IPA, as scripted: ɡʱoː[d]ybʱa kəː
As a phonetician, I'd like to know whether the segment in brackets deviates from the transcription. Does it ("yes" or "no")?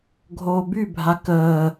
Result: yes